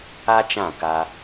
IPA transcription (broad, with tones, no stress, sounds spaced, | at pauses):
a˦ t͡ʃ ã˦˨ k a˧